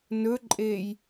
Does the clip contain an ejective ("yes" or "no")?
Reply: yes